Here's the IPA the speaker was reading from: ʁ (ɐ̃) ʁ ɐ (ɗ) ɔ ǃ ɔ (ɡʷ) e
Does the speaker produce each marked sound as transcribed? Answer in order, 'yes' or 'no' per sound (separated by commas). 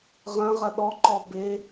yes, yes, no